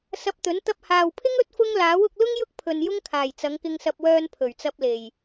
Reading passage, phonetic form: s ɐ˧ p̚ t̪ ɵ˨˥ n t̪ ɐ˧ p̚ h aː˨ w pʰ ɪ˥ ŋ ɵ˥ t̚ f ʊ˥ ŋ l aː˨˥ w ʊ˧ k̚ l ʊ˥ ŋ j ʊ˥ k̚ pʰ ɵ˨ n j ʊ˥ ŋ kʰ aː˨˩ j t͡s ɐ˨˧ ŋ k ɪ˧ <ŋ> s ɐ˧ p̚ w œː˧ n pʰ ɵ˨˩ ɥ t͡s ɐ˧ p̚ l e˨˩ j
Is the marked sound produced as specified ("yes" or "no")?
yes